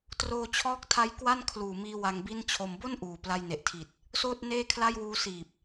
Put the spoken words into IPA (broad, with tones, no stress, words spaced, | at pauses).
troː˧t͡ɕʰɔː˦˥k̚tʰa˦˥j kwa˥˩n kʰluː˨˩miː˧ wa˧ŋbi˥˩nt͡ɕʰo˧m bo˥˩n ʔuː˨˩ pla˧jne˨˩ʔtʰi˨˩t̚ | soː˥˩t̚ neː˥˩kʰla˥˩jwuː˦˥ siː˨˩p̚